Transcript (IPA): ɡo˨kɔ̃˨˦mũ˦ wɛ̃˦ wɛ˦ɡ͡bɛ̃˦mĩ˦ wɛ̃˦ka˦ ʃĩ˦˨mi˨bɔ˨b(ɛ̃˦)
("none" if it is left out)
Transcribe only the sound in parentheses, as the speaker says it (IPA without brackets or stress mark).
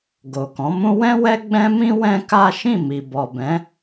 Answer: ɛ̃˨˦